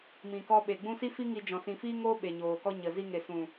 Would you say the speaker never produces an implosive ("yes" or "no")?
no